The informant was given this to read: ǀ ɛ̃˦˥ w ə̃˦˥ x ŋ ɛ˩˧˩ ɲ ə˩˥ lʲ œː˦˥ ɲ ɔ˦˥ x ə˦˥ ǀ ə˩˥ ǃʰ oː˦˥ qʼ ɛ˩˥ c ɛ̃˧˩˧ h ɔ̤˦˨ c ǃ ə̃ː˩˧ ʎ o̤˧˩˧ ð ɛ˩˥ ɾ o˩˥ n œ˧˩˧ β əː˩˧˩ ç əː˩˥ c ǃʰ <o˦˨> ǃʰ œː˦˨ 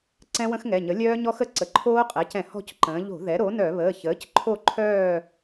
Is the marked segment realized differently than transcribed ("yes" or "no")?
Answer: no